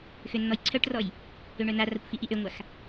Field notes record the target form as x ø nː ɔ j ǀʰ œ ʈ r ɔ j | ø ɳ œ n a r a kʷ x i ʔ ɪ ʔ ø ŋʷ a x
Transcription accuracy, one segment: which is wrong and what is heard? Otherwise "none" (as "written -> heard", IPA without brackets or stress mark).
ɪ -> i